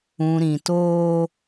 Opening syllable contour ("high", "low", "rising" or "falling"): low